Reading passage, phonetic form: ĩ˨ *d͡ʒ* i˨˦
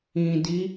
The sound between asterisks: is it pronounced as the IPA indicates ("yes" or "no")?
no